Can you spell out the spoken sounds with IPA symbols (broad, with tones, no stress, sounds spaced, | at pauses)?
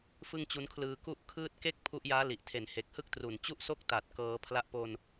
f ɯ˥˩ ŋ t͡ɕ u˦˥ n kʰ l ɯː˧ k u˥˩ ʔ kʰ ɯː˥˩ t̚ k e˥˩ k̚ pʰ u˦˥ ʔ j aː˦˥ l i˨˩ ʔ tʰ e˨˩ n h e˨˩ k̚ h ɯ˥˩ k̚ t r u˨˩ n t͡ɕ u˥˩ ʔ s o˥˩ k̚ t a˨˩ t̚ k ɤː˩˦ pʰ l a˦˥ ʔ p o˧ n